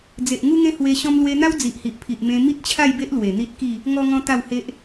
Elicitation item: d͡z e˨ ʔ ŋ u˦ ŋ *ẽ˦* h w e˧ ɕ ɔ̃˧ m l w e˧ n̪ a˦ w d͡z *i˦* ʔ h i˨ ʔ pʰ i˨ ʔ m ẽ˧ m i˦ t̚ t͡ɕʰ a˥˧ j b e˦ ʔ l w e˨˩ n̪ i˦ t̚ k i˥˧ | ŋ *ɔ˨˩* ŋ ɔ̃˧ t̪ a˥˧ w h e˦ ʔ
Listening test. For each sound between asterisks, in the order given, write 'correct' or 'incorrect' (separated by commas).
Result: correct, incorrect, incorrect